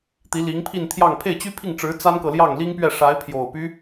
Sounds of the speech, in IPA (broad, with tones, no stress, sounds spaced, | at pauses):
t̪ i˧˥ l i˧˥ ŋ pʰ i˥˧ n t̪ʰ j ɑ˥˧ ŋ pʰ e˥˩ ɪ̯ t͡ɕ y˥ pʰ i˥˩ ŋ ʈ͡ʂ ɻ̩˧˥ t͡s a˥ n k ɤ˨ l j ɑ˥˩ ŋ l i˥ ŋ p ɥ ɛ˥˩ ʂ a˧˥ ɪ̯ pʰ j o˨˩ ʊ̯ p y˦